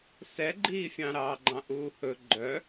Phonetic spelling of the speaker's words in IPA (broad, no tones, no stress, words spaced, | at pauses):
sɛɡ͡ǃiːfʲɑ̃ ɾɑːɡ͡ǃɑ̃ʔuːhɵ ɡ͡ǃœ